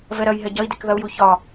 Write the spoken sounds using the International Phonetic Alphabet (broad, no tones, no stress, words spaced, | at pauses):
vɛɾɐj ɦɛɟɐi̯dek ðɐu̯ju çɒ